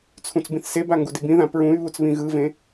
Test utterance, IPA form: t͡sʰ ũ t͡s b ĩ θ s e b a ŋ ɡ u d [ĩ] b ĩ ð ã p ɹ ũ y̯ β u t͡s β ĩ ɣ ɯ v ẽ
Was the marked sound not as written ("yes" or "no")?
yes